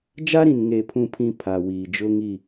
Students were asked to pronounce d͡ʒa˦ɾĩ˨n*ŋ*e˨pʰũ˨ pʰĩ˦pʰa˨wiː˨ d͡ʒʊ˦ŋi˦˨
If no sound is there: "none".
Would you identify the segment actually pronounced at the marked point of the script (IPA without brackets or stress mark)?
ŋ